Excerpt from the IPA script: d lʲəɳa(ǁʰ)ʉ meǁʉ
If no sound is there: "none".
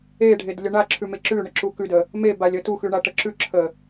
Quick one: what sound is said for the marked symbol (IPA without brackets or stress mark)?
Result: ǁʰ